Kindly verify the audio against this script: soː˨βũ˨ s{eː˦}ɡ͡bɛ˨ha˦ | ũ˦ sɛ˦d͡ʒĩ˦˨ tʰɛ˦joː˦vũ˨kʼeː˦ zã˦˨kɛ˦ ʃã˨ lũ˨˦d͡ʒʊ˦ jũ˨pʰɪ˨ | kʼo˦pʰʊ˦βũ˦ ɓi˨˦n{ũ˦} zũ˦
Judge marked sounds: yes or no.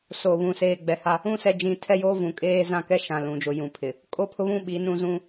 no, yes

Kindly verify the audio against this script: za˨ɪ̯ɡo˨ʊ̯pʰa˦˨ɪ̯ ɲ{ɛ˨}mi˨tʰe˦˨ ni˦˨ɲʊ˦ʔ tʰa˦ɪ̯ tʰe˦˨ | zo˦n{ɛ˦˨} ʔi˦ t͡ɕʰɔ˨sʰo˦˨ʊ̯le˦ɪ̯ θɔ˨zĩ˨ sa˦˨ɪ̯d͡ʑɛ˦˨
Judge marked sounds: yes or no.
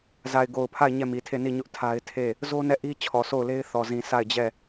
no, yes

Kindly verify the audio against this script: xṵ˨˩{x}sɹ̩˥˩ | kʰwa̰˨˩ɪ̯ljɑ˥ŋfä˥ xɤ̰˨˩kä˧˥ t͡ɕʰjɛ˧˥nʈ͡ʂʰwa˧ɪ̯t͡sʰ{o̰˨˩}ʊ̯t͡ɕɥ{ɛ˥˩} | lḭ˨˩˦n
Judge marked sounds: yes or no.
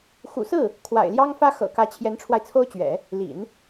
no, no, no

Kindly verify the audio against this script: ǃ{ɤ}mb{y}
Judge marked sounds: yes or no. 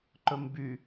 no, yes

